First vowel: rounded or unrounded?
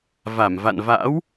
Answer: unrounded